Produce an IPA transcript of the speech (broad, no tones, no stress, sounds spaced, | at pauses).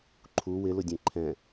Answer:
ǃʰ u w ɪ l ʊ dʲ ẽ ǃʰ ɛ̃